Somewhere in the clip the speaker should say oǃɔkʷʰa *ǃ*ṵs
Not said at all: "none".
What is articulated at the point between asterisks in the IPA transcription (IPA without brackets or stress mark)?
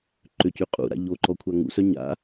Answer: ŋ